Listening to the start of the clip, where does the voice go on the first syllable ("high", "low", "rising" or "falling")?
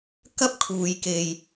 high